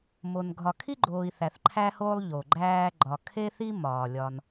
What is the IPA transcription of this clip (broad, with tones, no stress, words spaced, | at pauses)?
mo˩n ɡʱɒ˨kʰi˥ɡ͡ǃoː˨i̯ θæ˨θǃʰæ˥hoː˥lˠ ʎo˩ɡ͡ǃæː˦ɡ͡ǃɒ˨ kʰe˥θi˥ mɒː˩lʲɒ˨n